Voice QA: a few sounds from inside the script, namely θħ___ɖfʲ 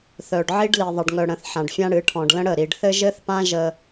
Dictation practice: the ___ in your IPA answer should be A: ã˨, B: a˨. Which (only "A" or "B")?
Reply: A